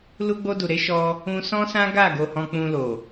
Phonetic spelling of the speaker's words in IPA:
l u˧ ɡ͡b o˧ d u˨ ɾ e˨˦ ʃ ɔ˧ | ũ˧ s ɔ̃˦ s ã˦ ɡ a˦˨ ɡ o˨ h ɔ̃˧ k͡p ũ˧ l o˨

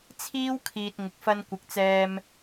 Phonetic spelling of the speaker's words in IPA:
t͡sʰ iː˥ w kʰ iː˨ t̚ ŋ ɪ˨ k̚ f ɐ˧ n kʷ ɪ˨ k̚ t͡s ɛː˧ m

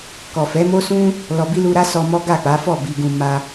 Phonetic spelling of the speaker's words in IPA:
k ɔ˨ f ɛ˨˦ m o˦ s ũ˦ | l ɔ˨ b i˧ l u˧ ɾ a˦ s ɔ˧ m ɔ˦ ɡ a˦˨ k͡p a˨˦ f ɔ˦˨ b i˧ ɡ ũ˧ m a˧

